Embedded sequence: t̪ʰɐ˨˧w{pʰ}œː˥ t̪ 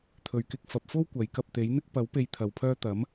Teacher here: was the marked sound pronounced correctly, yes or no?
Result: yes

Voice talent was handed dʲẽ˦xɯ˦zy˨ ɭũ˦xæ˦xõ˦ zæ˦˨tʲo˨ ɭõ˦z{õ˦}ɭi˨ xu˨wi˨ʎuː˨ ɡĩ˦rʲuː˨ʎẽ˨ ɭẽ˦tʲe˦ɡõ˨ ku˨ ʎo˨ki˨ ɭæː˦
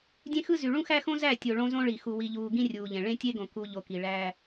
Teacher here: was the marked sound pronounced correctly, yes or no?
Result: yes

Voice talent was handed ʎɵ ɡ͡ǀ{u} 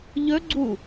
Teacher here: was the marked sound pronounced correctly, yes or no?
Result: yes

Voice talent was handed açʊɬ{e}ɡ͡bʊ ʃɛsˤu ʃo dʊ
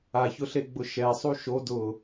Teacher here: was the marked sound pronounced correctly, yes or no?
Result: yes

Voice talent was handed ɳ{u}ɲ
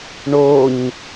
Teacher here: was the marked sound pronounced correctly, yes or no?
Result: no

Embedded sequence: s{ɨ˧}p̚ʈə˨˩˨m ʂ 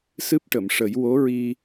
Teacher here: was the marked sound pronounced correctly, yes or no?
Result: no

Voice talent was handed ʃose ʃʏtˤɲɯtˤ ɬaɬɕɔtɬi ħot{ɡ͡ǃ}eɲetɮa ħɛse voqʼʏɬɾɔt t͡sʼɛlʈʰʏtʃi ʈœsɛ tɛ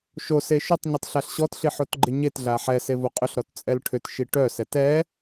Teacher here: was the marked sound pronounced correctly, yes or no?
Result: yes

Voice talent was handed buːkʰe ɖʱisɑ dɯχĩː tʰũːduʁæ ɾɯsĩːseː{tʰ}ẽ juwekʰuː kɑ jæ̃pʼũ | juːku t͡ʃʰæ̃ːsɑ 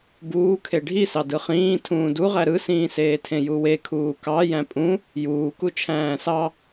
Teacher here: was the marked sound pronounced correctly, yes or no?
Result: yes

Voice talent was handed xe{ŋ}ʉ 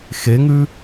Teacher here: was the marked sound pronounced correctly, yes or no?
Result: yes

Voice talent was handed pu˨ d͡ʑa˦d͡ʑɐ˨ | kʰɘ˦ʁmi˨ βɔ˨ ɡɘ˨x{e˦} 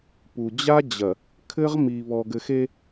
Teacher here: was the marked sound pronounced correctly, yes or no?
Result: yes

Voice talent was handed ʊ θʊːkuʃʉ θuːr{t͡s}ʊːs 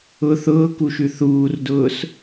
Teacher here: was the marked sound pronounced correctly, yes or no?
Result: no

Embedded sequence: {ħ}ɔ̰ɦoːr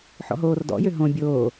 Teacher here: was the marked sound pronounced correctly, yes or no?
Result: yes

